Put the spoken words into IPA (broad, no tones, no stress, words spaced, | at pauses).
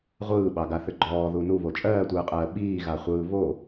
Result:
ʁʷɯːɓɑɡaθʏ ɡ͡ǃɔːðu nuβo t͡ʃʼɜːtʷɯːqʼɜː ɓiːɣaχʷɯː βo